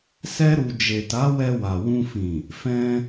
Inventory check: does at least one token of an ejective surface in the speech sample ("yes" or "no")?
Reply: no